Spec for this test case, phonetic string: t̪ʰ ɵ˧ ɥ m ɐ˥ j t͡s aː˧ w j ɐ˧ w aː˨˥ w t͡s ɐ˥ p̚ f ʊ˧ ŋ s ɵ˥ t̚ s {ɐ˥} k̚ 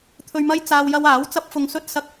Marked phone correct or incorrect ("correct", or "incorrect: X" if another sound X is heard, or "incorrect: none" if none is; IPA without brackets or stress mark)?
incorrect: ɐ˧